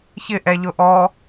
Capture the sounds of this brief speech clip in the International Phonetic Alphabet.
çɪ ʔɛʎʊʔɔ

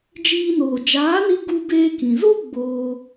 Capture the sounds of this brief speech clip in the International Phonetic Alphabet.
d͡ʒiː˧noː˨ d͡ʒaː˨˦ni˧ ɡu˧beː˧kĩ˨ zo˦ ɡ͡boː˧

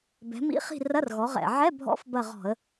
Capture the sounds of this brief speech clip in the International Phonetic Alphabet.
bɛ̤˩˧mḭ˧˥˧χi̤˦˨ rɐ˧˥˧rɣɔ˩˧ʁɛ̰˨˩ ʕɛ˧˥˧bʱɔ̰˧˥f bɐ˦˨ʁɔ̤˧˩˧ə̯

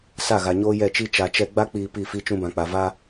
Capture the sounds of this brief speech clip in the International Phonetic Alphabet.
sa˦˨ɣa˨ɲoː˦ jɛ˦˨t͡ʃi˦ t͡ʃa˨t͡ʃɛ˦ ɡ͡ba˦k͡piː˨ pi˦˨fi˦ t͡ʃũ˦bã˨k͡pa˨ va˦

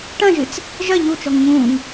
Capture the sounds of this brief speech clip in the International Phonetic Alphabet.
ʈɐ̃ʒɨt͡s | ʒɐ ʎut͡ʃɔŋ ɲũːŋ

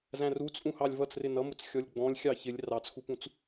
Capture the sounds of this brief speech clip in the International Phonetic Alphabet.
zæ̃rut͡sʼũhɑlʲ vʌt͡srɪ nʌmʊt͡s xʲɔlʲɡ͡bɔ̃lʲ xʲɑçɪlʲ rɑt͡sxupũt͡s

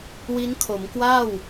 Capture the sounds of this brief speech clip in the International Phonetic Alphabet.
wi˦˥nkʰo˩˦mkwaː˥˩w

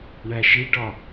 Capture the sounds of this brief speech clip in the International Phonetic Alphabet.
ɳæʃiɖɒ

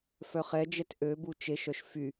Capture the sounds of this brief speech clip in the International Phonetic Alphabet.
fœχɛd͡ʒɛt ʔøbu t͡ʃeʃœʃ fy

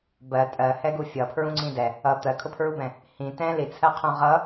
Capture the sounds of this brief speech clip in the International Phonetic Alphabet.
bɜ tʼɜhɛɡu fʲʌpʰɹũŋ͡ǀĩ dɛ | ʌ t̪ɜkʰʊpʰɹubɛ̃ | hĩ tɛ̃ lit͡sʰɜqʰũ ʁʌ

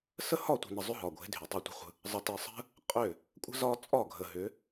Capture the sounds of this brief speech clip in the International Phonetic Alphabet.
sə˦˨hɒ˦˨tʷi̤˨nə˨ zˤʏ˦ɦɒ˨ɡʷe̤˨˦ dʱy˨tˤe˦tʷə̤˦χʷə̤˦ | zˤə˨tɘ˨ sˤə̤˦ | qʼʏ˦˨ | kʷʼə̤˦zɒ˦t͡sʼɒ˦˨ ɡʱə˨ɦʏ˨˦

